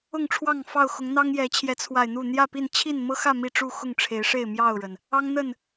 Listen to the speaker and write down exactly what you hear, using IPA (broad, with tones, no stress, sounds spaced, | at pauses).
ʊ˥˨ ŋ ʈ͡ʂʰ w ɑ˥˨ ŋ f ɑ˥˨ ʊ̯ x ʊ˨˦ ŋ n̪ ɑ˦ ŋ j ɛ˨˦ t͡ɕʰ j ɛ˨˦ t͡sʰ w a˨˩ ɪ̯ n̪ u˥˨ n̪ j ä˥˨ p i˥˨ n t͡ɕʰ i˥˨ n m ɤ˦ x ä˥˨ m i˥˨ ʈ͡ʂ u˥˨ x ʊ˥˨ ŋ ʈ͡ʂʰ e˨˦ ɪ̯ ʂ e˥˨ ɪ̯ m j ɑ˥˨ ʊ̯ ɻ ə˩ n | ɑ˦ ŋ n̪ ə˥˨ n